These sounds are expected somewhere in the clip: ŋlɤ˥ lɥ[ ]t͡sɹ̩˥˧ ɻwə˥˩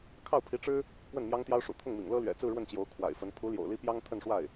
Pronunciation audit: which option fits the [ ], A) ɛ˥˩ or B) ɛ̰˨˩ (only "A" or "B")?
B